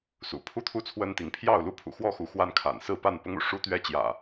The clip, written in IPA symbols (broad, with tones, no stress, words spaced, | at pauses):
sṵ˨˩ pʰu˥˨t̪ʰu˥˨t͡sʰwə˦nt̪i˨˦ŋ pʰjɑ˥˨ʊ̯ lu˥˨pʰṵ˨˩ xwɔ˥˨xu˨˦ xwa˦nkʰa̰˨˩n sɹ̩˥˨pa˥˨npʊ˦ŋṵ˨˩ ʂu˦t̪ɥɛ˦t͡ɕjä̰˨˩